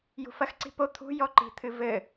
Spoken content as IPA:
j ṳ f ɐ x ǀ i̤ p o t̪ʰ ṳ j ɔ ǃ i̤ t̪ʰ ɨ v ɘ

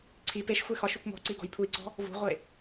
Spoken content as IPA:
ǀʰ i p e ʃ xʷ e x ɒ ʃ u kʷ m ɔ̤ ǀ i ɡ ɔ̤ j pʰ u i̯ ǀ ɔ̤ | v ṳ ʁʷ e

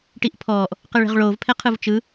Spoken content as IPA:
ʈ i ʔ pʰ ɔː ʔ | q ɯ ɭ e̤ ʁ ɭ oː v pʰ ɛ qʰ ɯ v t͡ʃ ɯ

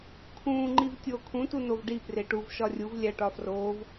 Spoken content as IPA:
kʰ ũː ŋ͡ǃ i v tʲ oː kʰ ũ t u n o v ɖ i p r e ʈ u v ʃ ɒ rʲ u v lʲ æ ʈ ɒ f r oː v

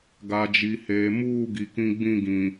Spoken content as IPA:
ɡ a˨ d͡ʒ i˨ h eː˨ m uː˦˨ ɡ i˨ k ĩ˦ ɡ͡b ĩ˦˨ ɡ ĩ˨

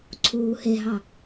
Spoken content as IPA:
ǀʰ uː h e ɦ ɑ

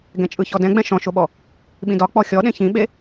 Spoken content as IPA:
ɡ ɛ̃ t͡ʃʼ ɯ ç ɔ d ɛ̃ ɡ͡b ɛ̃ ʃ ɔ̃ ʃ o ɓ ɔ | ɓ ĩ d ɒ k͡p ɔ xʲ ɔ ɗ ẽ ç ĩ ɓ e

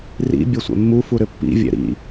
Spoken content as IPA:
r ḭ bʲ ɛ sʷ ɛ̰ mː u f u ɾ ʏ pː ḭ vʲ ɛ̰ ɾ ḭ

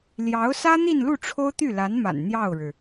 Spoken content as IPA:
l j ɑ˧˥ ʊ̯ s ä˥ n̪ i˥˧ n l u˥˩ ʈ͡ʂʰ o˥ ʊ̯ t̪ y˥˩ l a˧˥ n m a̰˨˩ n n̪ j ɑ˥˩ ʊ̯ ɻ ɻ̩˩

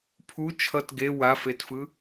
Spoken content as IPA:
pʰ u t͡ʃʰ ʌ t ɡ e w a f e t f ɯ

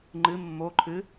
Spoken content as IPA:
ŋ͡ǃ ɨ mː o ǃʰ ɨ

